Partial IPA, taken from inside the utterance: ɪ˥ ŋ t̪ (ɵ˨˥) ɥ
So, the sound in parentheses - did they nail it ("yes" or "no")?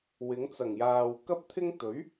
yes